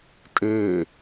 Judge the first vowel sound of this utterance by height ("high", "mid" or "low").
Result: mid